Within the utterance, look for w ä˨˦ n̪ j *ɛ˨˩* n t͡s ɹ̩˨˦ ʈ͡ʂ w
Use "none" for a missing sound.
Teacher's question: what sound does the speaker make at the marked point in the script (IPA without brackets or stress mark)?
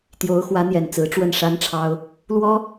ɛ˨˩